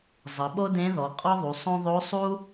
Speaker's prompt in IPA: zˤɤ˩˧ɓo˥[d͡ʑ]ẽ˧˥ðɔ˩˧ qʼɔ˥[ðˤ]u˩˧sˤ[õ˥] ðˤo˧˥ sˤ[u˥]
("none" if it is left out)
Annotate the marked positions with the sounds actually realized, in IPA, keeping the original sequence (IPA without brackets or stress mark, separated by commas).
d, ðˤ, õ˥, u˥